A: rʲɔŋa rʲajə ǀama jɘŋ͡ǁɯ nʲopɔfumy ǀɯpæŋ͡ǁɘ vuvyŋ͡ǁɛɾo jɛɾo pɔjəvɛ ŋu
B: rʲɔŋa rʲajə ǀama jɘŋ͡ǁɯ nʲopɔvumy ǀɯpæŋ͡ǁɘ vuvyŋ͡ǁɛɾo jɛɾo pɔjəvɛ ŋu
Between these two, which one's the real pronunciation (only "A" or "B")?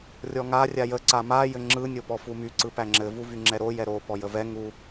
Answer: A